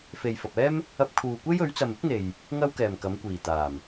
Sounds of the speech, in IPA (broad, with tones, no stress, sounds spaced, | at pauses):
f e˨ j f ɐ˨ p̚ ɛː˥ m | ɐ˧ p̚ kʰ uː˨ kʷ e˥ j ɵ˨˥ ɥ t͡s ɐ˨ m ɪ˥ k̚ n̪ e˨ j | ŋ ɐ˥ w k ɛː˨˩ m k ɐ˨˥ m kʷ iː˨˩ t̪ aː˨˩ m